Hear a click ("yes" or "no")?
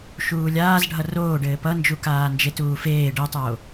no